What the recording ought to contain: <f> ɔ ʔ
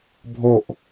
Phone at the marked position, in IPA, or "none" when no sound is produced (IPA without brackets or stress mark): bʱ